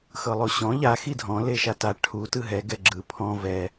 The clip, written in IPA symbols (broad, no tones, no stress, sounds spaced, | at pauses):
x ɤ lˠ o ɕ ɔ̃ ʎ a x i dʱ ɔ̃ l e ʃ a t a ʈʰ u t ɯ ɦ ɛ ɡ ɛ ɡ͡ǁ ɯ pʰ ɔ̃ v ɛ